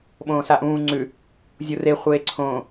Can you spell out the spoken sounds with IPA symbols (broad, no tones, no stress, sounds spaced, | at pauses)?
ɓ õː s a ʔ ũː ŋ͡ǀ ʉ | zʲ u r e χʷ eː ǀʰ õː